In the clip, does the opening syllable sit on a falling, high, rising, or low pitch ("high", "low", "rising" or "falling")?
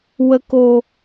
low